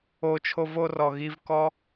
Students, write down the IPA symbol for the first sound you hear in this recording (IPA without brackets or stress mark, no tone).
o